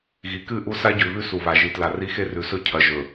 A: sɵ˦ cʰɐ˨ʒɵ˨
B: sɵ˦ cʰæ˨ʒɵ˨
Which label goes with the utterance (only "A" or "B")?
A